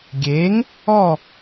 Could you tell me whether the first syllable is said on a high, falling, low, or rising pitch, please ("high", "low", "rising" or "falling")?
rising